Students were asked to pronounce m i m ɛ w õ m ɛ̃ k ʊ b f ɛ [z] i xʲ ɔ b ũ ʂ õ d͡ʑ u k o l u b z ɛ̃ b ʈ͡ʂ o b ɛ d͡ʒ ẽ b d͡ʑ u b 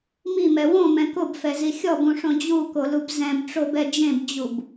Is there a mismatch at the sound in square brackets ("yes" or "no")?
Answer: no